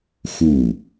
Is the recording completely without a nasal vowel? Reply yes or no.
yes